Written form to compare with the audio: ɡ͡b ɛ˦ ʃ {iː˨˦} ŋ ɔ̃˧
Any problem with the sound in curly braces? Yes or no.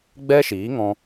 no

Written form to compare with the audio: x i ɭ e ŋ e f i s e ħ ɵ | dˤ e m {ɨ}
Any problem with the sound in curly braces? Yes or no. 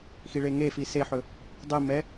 yes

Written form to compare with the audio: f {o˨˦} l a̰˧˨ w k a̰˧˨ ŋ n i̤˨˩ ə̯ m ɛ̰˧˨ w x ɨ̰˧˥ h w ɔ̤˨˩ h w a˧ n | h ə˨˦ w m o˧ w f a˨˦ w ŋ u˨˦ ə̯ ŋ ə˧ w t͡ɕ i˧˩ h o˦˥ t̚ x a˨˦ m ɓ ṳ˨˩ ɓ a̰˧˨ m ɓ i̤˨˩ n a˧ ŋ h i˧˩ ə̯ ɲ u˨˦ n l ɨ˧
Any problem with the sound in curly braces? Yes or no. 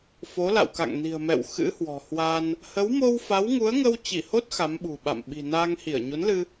no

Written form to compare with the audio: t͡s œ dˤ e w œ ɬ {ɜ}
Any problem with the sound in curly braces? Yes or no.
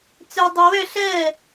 no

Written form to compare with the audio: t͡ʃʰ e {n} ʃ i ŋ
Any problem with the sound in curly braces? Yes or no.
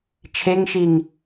yes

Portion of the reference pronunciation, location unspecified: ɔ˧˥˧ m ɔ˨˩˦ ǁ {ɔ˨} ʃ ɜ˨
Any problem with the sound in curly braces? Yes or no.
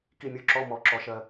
yes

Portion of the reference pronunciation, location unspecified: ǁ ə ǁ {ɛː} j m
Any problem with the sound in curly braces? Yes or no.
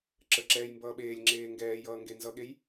no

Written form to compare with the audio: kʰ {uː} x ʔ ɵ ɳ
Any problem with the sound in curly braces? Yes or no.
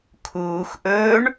no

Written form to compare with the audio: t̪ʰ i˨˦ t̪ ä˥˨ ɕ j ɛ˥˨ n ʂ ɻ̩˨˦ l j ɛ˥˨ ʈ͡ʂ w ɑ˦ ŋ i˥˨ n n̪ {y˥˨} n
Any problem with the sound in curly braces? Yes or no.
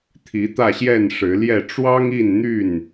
no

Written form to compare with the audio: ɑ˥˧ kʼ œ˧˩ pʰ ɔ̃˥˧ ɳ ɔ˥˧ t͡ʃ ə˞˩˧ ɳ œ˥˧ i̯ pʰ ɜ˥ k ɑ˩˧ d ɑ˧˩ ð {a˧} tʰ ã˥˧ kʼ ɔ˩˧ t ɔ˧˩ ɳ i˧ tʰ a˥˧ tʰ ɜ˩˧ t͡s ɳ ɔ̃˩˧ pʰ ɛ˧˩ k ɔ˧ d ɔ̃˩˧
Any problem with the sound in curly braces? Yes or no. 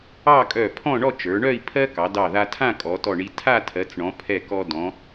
no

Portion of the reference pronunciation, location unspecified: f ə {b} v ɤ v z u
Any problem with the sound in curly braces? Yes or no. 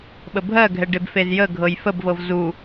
no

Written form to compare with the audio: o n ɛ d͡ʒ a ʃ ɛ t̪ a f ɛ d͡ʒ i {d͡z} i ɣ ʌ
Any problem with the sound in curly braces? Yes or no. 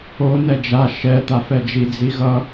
no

